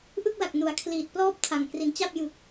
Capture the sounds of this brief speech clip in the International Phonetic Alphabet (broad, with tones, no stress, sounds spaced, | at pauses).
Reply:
ʔ ɯ˥˩ k̚ l a˨˩ k̚ n u˩˦ a̯ kʰ l iː˨˩ t̚ p l ɔː˥˩ p̚ tʰ a˨˩ ŋ k r i˩˦ n t͡ɕ a˥˩ p̚ j ɯ˨˩ k̚